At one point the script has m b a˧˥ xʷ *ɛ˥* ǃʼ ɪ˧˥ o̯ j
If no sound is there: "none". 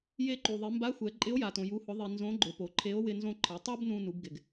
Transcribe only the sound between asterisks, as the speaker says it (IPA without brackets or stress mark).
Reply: ɛ˩˧